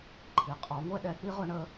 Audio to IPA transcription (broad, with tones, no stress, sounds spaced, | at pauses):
ǃʰ i˨˥ qʼ ɔ˨˥ ŋʷ ɛ˥ ɗ ɛ˨˥ k͡p i˥ ʁ ʊ˥ ɳ ə˥